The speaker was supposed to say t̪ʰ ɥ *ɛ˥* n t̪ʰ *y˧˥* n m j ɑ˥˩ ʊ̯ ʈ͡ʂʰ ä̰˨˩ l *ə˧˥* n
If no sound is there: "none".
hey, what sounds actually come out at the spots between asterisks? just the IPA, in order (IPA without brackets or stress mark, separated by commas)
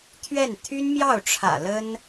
ɛ˥˩, y˥, ə˥